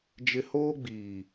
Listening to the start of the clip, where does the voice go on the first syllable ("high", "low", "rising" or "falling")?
high